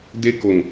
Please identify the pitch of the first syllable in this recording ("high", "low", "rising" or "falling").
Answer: high